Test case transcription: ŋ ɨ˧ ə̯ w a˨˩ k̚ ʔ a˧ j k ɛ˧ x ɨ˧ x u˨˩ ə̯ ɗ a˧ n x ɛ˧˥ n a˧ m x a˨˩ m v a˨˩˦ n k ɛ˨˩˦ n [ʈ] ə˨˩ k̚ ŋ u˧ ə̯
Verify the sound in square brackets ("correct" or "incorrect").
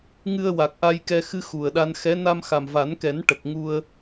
correct